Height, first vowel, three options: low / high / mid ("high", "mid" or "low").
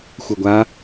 mid